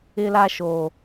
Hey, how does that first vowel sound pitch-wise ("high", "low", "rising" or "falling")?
high